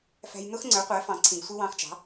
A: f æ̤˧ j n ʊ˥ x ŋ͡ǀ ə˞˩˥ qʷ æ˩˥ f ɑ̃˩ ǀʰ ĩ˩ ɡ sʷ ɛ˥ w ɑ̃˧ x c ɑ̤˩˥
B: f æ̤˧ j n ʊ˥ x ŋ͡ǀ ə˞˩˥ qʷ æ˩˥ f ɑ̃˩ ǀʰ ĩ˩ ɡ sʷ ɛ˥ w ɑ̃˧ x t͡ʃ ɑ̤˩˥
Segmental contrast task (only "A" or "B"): B